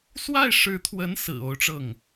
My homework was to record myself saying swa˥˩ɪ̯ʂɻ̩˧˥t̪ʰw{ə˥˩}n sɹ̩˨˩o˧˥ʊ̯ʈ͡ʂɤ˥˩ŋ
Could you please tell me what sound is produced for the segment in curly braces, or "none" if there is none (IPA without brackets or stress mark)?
ə˧˥